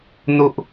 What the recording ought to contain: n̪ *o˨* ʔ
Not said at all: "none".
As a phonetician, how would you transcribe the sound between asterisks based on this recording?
o˨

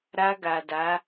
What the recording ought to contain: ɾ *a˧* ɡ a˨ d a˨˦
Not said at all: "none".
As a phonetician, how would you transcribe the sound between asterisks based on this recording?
a˧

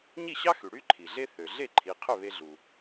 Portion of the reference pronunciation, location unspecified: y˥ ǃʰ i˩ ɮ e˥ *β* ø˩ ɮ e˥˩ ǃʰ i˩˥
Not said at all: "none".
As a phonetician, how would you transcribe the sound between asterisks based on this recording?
θ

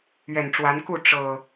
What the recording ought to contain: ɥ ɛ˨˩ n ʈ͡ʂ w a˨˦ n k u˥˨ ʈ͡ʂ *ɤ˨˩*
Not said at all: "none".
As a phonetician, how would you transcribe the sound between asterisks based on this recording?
ɤ˨˩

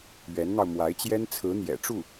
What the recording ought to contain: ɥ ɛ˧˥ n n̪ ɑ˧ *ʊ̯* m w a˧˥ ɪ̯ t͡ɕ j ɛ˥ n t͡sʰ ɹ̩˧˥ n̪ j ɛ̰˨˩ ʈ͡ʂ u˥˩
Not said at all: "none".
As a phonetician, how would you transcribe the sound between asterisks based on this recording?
ʊ̯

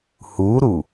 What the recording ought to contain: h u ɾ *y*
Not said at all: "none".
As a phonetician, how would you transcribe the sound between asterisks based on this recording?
u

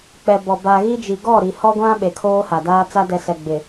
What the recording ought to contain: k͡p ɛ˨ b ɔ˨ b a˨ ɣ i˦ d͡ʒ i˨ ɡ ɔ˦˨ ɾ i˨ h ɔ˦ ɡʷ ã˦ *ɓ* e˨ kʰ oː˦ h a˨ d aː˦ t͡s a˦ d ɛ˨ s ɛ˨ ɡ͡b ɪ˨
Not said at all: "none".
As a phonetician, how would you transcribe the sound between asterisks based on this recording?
ɓ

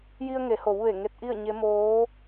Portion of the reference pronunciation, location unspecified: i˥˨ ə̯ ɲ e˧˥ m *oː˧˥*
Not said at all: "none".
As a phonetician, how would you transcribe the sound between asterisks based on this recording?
oː˧˥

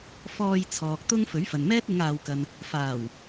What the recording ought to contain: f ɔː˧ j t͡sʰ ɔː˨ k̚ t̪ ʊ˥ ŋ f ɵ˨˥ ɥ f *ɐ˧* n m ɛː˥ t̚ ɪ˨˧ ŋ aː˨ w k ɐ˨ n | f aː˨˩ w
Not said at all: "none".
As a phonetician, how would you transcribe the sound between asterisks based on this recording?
ɐ˨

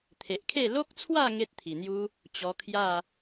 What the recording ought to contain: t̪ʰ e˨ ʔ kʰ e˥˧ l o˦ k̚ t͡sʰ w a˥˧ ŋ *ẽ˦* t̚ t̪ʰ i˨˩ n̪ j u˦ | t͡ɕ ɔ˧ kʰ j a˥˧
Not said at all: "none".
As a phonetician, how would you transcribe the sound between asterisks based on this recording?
e˦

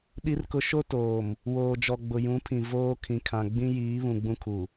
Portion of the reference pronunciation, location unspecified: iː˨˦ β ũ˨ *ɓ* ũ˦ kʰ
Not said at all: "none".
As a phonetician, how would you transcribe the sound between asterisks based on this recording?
ɡ͡b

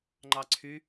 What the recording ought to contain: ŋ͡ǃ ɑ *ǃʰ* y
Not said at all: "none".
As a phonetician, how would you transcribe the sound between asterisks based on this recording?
ǀʰ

